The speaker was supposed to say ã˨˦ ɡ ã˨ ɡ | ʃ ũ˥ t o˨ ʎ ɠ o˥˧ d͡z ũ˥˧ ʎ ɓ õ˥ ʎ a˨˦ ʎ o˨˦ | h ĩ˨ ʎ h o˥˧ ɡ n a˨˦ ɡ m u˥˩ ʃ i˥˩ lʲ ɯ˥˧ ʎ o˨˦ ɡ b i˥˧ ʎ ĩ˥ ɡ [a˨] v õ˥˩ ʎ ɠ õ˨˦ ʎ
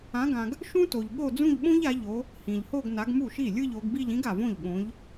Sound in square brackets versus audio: correct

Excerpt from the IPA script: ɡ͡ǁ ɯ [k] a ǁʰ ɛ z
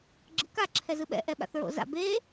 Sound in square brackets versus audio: correct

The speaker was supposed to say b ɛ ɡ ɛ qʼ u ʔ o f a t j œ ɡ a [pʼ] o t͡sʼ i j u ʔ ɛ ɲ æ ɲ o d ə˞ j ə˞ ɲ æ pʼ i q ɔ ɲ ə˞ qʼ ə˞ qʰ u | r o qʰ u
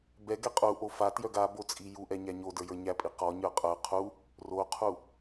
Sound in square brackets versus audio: incorrect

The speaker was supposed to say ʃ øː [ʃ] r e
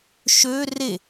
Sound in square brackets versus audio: incorrect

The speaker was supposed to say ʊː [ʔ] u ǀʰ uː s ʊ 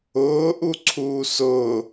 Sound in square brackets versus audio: correct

